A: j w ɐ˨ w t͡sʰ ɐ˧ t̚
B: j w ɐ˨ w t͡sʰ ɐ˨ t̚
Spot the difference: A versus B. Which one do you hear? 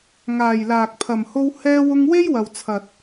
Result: B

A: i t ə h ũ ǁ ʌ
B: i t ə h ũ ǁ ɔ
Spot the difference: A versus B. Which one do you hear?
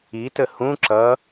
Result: A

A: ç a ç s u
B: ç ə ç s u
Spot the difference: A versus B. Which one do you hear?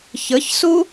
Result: B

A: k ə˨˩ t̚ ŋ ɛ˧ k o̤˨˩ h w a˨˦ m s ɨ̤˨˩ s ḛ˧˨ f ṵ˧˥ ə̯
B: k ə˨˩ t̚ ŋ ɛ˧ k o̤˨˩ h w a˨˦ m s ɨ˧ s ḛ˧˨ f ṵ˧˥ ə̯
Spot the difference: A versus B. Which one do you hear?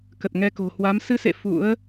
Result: B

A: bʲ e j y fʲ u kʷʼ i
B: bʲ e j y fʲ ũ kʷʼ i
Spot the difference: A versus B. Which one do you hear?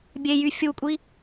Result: A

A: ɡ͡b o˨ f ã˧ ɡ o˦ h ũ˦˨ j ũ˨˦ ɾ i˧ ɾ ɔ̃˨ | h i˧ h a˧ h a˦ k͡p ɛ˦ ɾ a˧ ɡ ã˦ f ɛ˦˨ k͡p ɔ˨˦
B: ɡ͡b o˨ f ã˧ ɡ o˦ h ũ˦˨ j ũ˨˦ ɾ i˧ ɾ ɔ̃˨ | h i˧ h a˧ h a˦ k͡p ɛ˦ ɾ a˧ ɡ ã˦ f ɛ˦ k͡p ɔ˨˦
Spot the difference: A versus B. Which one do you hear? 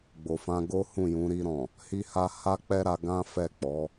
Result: A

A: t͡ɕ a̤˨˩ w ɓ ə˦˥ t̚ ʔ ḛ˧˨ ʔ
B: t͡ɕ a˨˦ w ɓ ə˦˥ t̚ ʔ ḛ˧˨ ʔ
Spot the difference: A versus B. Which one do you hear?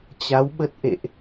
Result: B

